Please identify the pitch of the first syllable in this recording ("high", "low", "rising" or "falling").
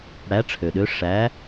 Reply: rising